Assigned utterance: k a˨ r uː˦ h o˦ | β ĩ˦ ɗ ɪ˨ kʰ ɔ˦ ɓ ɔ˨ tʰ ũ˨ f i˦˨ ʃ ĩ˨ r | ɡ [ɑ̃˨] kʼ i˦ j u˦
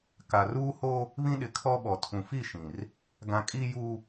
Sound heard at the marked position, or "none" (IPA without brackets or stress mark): ã˨